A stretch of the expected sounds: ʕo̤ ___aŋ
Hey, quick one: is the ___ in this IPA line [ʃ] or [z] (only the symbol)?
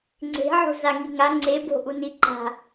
z